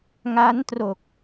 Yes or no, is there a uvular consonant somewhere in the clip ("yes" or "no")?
no